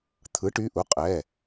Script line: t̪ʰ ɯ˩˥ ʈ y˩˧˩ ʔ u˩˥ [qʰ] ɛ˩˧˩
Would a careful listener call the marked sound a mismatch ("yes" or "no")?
yes